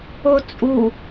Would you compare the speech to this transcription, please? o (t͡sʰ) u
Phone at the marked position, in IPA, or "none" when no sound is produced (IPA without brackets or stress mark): t͡sʼ